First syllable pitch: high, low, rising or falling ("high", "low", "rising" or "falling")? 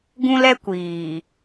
high